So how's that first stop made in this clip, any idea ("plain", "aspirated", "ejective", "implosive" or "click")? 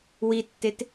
plain